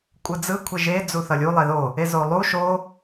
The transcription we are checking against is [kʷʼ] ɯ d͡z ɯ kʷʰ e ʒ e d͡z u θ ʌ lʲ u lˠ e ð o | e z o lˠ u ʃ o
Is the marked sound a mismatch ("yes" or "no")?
no